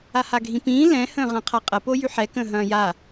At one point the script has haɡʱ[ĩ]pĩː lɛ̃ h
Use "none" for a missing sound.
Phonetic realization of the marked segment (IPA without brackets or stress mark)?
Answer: ĩ